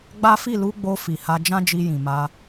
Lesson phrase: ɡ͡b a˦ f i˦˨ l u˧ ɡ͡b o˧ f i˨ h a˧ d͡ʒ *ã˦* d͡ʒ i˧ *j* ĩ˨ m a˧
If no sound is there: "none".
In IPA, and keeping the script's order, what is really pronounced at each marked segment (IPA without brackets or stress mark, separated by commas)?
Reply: ã˦, j